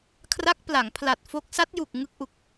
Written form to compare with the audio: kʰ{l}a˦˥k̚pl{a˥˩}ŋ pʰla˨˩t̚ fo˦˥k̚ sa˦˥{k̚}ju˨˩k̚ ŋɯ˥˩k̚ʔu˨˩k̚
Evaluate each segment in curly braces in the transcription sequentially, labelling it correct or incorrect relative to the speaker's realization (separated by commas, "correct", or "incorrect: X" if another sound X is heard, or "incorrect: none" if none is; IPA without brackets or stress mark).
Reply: incorrect: r, incorrect: a˩˦, incorrect: t̚